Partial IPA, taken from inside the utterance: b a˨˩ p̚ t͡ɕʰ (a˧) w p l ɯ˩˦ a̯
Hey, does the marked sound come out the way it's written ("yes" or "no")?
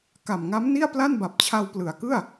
yes